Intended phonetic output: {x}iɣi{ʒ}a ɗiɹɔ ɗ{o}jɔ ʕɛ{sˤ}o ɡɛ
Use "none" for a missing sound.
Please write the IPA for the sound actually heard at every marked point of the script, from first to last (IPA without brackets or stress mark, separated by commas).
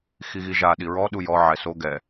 x, ʒ, u, s